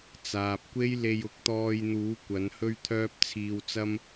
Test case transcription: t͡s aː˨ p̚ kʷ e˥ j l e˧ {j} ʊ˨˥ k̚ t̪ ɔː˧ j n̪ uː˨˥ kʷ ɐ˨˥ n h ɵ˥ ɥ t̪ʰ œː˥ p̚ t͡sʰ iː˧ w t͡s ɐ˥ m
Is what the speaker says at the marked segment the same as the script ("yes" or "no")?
yes